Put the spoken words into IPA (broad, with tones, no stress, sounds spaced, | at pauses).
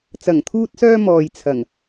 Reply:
t͡s ɐ˨˩ ŋ t̪ʰ uː˧ t̚ s œː˧ m ɔː˨ j t͡sʰ ɐ˨˩ ŋ